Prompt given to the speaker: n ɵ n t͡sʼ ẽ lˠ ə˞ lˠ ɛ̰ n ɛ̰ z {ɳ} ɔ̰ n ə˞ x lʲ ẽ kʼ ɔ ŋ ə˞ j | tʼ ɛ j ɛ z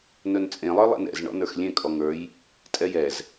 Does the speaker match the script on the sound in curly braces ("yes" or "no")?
yes